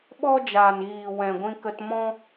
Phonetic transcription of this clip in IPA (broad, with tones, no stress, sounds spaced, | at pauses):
ɓ ɔ˦ d͡ʒ aː˨ n ɣ iː˨ w ɛ̃˨ ɡʷ ĩ˧ k ə˧ t m ɔ̃˦